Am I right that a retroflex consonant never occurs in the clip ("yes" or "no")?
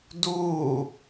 yes